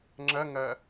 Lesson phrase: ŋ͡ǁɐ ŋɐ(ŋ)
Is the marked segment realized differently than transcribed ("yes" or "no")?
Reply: yes